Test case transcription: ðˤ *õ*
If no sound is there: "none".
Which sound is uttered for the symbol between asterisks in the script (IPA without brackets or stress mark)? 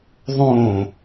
õː